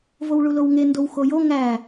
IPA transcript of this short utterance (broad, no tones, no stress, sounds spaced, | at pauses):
v o w ɭ u l o w ŋ e n d o w x o j o ŋ æ